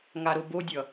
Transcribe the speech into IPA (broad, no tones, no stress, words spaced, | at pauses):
ŋaɾobodʲʌ